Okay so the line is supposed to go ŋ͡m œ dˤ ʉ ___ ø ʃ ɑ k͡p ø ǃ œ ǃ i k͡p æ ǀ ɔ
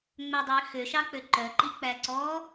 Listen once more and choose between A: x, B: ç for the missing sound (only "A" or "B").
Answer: A